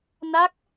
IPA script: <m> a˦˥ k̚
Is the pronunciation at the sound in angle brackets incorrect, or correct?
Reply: incorrect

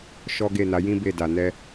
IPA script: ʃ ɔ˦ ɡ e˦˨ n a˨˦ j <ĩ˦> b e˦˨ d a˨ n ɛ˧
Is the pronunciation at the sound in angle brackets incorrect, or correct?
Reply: correct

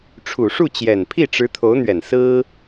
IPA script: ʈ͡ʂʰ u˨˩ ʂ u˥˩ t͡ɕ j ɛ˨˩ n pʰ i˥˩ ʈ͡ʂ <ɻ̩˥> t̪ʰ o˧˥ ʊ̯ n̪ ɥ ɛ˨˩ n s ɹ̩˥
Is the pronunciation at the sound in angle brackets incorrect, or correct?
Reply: incorrect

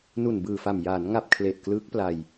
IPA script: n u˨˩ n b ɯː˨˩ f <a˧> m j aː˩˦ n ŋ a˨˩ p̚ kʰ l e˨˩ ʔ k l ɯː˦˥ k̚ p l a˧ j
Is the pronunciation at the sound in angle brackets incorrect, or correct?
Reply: incorrect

